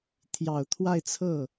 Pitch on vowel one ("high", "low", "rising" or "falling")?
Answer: low